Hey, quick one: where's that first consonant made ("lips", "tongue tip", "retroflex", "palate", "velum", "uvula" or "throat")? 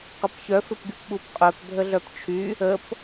uvula